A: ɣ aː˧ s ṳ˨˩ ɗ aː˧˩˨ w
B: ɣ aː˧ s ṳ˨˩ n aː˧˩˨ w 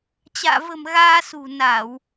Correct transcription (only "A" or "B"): B